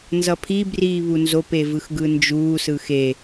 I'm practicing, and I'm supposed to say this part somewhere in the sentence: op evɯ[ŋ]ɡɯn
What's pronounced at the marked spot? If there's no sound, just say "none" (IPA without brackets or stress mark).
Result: x